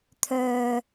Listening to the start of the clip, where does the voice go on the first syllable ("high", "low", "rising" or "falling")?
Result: low